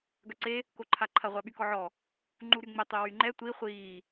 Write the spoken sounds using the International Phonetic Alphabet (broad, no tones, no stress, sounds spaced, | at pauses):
ɡ œ ǀ e | k o ǃʰ a ǃʰ ɐ ʁʷ a ɓ y k ɔ ʕ ɔ | ŋ͡ǃ u ɾ y ŋ͡m ɪ tˤ y w y ŋ͡ǃ ɛ tʷ i χʷ iː